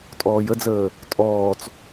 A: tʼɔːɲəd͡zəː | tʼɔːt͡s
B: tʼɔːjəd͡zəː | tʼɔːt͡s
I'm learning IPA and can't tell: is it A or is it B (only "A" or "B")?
B